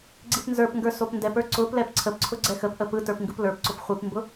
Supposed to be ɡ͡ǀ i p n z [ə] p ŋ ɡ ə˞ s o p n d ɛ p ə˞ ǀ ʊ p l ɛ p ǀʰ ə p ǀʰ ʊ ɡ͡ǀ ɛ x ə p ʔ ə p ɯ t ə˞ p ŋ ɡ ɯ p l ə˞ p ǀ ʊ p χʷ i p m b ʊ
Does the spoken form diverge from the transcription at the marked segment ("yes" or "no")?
yes